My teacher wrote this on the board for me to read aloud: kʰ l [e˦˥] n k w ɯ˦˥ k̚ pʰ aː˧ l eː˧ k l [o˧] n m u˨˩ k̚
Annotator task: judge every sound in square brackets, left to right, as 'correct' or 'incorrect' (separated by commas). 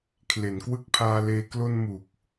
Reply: incorrect, correct